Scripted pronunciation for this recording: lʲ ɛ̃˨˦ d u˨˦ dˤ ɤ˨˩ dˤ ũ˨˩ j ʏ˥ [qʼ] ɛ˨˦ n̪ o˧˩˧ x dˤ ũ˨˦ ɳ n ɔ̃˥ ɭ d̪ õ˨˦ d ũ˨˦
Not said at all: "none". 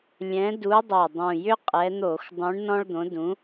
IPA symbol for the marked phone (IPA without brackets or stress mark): qʼ